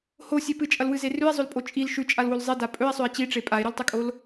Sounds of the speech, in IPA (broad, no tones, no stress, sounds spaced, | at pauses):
h o sʲ e p ɨ t͡ʃʼ ɐ l w ɨ z e r ʉ e̯ zˤ ɵ l pʼ o t͡ʃʼ i l ʃ ʉ t͡ʃʼ a l w o l zˤ e d a pʼ ɵ e̯ sˤ ɵ e̯ t͡ɕ i ʈ͡ʂ e pʼ a e̯ ɾ ʉ l tˤ ɨ kʼ o l